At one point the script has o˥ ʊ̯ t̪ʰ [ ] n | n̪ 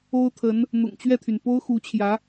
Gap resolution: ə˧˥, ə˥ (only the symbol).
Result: ə˧˥